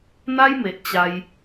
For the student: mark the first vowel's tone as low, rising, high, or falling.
high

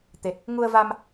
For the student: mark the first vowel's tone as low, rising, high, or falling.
low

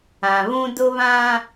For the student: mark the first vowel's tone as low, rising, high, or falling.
low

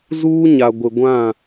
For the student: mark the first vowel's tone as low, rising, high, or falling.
high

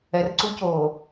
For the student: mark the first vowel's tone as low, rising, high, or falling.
low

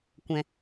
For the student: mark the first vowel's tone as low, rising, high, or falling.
low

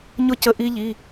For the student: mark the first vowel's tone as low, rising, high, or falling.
falling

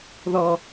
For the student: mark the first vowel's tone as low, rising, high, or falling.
low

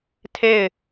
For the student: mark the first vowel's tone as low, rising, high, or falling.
falling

